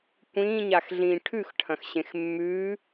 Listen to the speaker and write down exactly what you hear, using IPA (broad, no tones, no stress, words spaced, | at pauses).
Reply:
kʷĩːɲaxɮĩː ʈʰʉxʈʰɐ̃xɕẽx mːʉː